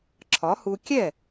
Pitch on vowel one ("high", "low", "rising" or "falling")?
rising